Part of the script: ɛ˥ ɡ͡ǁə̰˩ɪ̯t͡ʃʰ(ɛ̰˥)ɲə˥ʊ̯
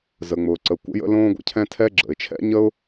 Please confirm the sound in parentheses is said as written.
yes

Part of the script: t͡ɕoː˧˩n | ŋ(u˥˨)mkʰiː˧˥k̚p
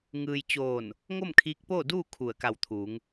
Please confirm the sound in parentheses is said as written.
no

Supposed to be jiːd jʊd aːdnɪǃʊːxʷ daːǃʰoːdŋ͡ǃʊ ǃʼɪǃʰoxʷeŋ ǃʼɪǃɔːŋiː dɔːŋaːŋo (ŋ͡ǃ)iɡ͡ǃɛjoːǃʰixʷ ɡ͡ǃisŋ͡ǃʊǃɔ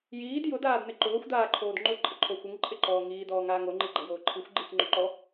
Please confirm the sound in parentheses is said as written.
yes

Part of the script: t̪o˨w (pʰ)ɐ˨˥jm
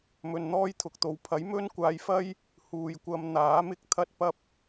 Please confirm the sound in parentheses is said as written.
yes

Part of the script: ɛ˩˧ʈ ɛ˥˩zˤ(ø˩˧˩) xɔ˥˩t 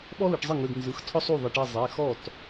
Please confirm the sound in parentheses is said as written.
no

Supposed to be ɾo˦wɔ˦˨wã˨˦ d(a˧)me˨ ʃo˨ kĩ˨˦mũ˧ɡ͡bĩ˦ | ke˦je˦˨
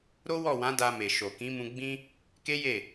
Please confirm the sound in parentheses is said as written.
yes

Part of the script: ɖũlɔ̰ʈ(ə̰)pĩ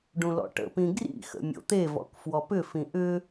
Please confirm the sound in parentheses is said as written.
yes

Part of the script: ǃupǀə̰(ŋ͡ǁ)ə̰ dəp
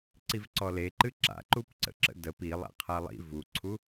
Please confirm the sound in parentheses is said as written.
no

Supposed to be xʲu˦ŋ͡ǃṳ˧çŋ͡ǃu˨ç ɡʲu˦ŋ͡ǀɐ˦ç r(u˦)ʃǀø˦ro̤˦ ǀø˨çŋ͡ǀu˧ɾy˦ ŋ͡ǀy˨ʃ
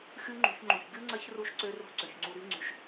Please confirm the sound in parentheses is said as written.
yes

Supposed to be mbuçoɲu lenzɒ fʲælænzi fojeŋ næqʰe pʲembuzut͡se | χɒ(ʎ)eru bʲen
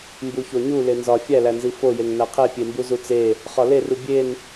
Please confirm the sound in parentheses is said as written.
no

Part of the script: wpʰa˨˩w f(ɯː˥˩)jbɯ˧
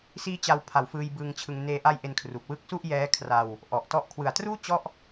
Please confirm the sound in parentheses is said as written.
no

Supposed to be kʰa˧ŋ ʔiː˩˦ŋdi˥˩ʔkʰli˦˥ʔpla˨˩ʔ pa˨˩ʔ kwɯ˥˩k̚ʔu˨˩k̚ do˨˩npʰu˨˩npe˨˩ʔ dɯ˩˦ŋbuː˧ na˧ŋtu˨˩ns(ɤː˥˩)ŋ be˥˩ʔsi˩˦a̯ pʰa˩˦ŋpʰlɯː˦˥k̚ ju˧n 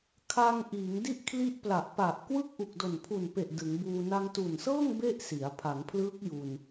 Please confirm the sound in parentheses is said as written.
yes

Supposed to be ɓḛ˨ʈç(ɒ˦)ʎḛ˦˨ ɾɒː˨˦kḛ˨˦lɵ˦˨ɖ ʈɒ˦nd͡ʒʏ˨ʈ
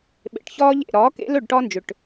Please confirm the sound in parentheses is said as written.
no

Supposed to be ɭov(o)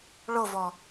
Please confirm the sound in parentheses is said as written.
no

